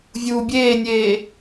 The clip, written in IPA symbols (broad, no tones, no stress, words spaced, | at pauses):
vʲuːbʲeːnʲeː